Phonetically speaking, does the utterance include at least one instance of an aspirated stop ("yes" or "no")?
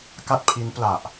yes